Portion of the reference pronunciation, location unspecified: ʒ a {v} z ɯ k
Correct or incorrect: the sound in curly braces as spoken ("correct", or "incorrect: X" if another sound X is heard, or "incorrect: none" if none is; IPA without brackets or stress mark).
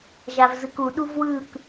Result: correct